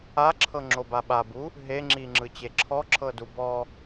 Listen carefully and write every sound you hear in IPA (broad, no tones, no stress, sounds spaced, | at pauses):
a ǁʰ ɤ ŋ͡ǁ o b a ɓ a b u | ɦ e ŋ͡ǁ i ŋ͡ǁ ɯ t͡ɕ e ǁʰ ɔ ǁʰ ɤ d u b ɔ